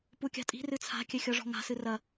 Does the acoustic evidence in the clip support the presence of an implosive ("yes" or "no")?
no